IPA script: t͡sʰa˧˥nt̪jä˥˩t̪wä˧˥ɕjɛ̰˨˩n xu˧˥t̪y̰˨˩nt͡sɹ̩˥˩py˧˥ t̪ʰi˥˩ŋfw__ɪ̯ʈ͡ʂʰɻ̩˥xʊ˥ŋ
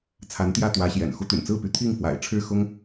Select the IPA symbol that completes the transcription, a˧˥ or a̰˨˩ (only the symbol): a̰˨˩